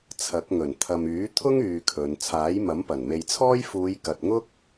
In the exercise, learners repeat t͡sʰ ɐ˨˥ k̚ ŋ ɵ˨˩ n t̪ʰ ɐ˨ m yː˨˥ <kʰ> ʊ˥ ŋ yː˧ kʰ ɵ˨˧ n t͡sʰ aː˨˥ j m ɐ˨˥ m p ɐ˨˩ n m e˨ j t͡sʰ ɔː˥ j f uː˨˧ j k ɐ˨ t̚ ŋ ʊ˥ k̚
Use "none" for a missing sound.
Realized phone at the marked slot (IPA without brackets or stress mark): t̪ʰ